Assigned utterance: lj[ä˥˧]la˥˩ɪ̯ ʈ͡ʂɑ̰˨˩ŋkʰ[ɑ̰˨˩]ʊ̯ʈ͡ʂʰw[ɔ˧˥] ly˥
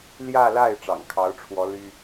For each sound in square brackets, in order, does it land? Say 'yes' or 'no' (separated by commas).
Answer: yes, no, yes